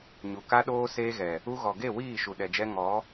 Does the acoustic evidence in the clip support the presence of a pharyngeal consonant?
no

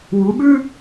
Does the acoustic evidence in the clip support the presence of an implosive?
yes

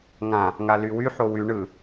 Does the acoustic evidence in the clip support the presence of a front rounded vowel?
yes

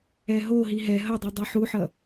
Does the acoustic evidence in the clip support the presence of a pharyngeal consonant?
yes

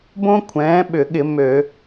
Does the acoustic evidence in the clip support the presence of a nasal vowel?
yes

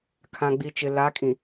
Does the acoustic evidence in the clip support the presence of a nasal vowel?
yes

